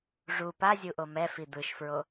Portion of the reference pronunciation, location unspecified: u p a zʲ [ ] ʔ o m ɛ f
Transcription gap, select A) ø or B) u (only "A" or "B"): B